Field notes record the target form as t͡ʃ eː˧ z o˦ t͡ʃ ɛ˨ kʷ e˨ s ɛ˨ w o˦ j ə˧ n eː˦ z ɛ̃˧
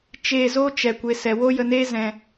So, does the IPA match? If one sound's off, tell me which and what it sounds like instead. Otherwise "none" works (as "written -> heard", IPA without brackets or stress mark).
none